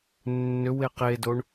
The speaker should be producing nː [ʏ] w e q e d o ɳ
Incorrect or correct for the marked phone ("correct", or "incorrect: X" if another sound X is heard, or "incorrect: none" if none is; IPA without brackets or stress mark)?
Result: correct